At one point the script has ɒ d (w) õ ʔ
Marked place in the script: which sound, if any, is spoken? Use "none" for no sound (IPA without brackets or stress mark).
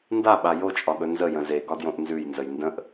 j